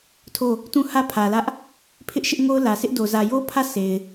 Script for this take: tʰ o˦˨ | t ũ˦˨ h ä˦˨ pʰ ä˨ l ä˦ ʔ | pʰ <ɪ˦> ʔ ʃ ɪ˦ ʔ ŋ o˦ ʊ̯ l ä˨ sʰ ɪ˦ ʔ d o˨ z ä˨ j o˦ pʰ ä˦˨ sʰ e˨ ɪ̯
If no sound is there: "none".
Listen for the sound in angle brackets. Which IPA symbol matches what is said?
ɪ˦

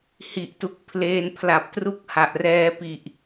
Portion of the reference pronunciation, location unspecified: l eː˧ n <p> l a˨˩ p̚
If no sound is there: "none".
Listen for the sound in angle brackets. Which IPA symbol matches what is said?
pʰ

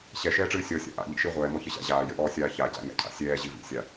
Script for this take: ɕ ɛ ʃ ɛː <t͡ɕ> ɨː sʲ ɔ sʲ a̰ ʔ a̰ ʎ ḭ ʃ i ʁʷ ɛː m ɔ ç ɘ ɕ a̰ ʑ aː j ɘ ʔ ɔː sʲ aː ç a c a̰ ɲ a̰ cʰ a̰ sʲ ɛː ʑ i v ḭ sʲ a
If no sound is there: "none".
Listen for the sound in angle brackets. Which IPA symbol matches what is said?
ʈ͡ʂ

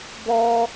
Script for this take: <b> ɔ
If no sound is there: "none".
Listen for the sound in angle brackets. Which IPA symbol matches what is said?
b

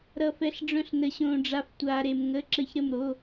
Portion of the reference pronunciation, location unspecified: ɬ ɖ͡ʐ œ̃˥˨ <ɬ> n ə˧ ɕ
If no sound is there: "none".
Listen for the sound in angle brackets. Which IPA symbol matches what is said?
ɬ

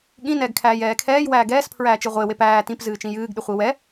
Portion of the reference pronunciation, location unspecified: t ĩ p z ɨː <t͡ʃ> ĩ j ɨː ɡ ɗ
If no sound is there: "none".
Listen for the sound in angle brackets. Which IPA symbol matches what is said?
t͡ʃ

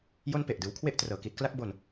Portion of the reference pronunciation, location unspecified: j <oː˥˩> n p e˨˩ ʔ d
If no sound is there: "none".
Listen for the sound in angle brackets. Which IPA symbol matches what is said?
o˥˩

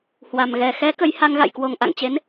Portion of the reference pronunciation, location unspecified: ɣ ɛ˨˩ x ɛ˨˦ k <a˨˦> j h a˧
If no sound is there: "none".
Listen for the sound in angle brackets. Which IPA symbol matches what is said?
ə˨˦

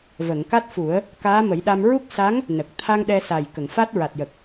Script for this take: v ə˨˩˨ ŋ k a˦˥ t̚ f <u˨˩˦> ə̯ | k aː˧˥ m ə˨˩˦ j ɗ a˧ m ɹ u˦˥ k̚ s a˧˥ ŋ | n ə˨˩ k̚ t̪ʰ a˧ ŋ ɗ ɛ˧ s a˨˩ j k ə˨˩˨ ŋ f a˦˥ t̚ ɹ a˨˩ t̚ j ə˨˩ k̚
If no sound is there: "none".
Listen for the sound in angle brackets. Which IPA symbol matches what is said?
u˨˩˦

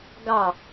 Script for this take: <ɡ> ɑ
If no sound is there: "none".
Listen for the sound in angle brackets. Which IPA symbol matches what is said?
ɡ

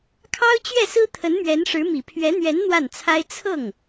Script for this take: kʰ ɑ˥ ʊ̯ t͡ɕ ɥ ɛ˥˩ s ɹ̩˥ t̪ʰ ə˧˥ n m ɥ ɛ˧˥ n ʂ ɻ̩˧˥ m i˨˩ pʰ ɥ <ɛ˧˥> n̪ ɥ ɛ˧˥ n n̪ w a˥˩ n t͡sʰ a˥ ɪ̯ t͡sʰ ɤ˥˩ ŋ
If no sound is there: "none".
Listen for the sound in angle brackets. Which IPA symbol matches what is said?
ɛ˧˥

